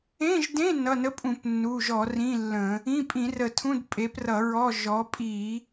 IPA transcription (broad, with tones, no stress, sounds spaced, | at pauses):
ẽ˧˥˧ ʒ d ẽ˧˥˧ n ʌ˩˧˩ n ə˧˥˧ pʼ ũ˧˩˧ p nː u˩˧˩ ʒ ɔ˧˩˧ r ĩ˧˥˧ lː ə̃˧˩˧ | ĩ˧˥˧ pʼ ĩ˧˩˧ r ə˧˩˧ tʰ ũ˧˥˧ d pʼ e˨˥ p r ʌ˧˩˧ ɹ ɔ˧˥˧ ʒ ɔ˨˥ pʼ i˧˩˧